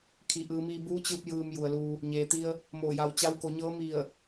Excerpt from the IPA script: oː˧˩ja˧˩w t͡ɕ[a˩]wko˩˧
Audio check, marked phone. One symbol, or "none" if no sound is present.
a˧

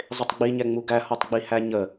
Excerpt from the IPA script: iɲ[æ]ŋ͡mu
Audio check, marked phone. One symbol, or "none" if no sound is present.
ɛ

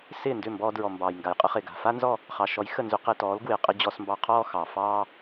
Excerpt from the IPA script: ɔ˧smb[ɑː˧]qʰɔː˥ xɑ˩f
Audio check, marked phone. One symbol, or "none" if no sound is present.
ɑ˧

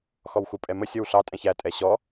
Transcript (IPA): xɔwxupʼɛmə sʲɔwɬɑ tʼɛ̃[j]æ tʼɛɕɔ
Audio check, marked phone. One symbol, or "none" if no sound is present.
ç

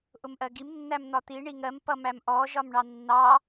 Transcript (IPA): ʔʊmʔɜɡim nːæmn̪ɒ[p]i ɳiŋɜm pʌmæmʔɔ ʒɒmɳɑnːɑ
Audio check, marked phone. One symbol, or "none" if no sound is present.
t̪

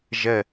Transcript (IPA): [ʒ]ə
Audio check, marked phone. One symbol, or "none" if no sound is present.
ʒ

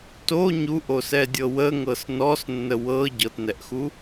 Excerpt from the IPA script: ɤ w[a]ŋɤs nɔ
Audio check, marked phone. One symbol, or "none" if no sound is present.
ə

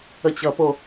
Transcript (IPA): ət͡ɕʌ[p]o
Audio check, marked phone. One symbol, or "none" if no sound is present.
p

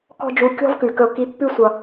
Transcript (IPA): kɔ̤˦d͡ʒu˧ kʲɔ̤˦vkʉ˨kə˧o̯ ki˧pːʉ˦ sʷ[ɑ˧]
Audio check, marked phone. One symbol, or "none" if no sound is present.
ʌ˧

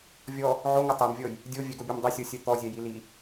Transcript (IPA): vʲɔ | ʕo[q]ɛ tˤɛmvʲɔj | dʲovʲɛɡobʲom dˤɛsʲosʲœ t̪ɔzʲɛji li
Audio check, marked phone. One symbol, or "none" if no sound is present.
ŋ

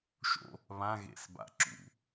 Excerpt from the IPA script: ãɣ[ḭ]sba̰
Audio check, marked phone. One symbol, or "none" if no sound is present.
ḛ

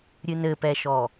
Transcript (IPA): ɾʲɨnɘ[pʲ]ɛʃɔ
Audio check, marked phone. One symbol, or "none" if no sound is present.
p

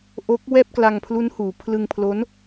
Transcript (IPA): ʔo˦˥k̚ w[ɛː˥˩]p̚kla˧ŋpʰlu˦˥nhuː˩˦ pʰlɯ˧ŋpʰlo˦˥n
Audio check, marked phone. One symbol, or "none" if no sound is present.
ɛː˥˩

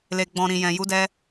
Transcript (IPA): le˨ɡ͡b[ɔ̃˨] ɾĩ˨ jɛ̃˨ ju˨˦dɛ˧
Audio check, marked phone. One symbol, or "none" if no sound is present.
ɔ̃˨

